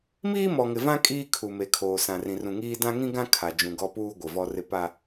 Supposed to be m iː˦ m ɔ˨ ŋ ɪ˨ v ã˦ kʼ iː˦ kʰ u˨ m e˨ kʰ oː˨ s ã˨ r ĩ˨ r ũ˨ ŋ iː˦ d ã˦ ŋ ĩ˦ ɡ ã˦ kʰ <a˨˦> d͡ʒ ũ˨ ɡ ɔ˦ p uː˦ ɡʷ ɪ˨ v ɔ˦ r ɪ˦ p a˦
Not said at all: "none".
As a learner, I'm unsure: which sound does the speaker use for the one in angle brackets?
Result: a˨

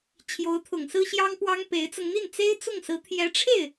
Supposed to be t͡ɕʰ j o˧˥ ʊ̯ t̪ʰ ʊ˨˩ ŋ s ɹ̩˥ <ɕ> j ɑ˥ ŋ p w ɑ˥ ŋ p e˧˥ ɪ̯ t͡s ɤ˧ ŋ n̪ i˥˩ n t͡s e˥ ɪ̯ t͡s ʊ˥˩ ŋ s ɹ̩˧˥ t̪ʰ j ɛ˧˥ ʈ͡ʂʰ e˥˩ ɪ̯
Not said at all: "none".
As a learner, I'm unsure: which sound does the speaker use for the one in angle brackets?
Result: ɕ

